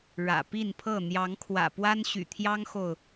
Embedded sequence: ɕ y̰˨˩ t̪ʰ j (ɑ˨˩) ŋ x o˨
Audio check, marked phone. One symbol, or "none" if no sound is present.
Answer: ɑ˦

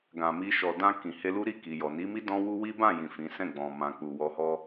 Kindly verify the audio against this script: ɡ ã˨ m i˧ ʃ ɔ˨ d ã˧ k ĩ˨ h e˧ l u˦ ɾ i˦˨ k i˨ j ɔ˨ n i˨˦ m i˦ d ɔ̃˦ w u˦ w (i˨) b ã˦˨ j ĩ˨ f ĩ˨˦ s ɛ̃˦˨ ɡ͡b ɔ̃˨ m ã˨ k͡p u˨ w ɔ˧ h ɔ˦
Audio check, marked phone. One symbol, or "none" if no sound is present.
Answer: i˦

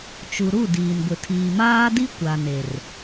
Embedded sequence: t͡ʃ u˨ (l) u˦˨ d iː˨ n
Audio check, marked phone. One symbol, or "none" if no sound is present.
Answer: ɾ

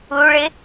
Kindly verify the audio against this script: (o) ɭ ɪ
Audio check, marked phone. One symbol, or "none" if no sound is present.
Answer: u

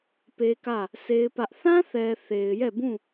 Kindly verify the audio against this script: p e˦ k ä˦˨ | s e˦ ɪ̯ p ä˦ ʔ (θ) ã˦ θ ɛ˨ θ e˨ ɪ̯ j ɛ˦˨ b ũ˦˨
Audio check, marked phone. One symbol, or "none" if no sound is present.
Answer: θ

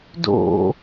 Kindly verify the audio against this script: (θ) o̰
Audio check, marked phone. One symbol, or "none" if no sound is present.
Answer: d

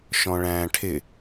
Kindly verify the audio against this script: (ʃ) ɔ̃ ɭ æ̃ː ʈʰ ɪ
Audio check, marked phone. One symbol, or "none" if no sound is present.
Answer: ʃ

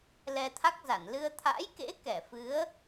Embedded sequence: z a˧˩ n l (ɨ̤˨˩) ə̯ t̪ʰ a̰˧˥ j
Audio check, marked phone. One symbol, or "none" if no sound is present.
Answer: ɨ˧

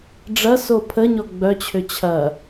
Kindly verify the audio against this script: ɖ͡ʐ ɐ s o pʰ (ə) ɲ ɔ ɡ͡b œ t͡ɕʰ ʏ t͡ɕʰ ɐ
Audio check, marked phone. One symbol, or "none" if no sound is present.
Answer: ə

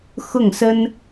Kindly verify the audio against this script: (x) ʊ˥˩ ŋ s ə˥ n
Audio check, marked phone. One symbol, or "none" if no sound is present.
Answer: x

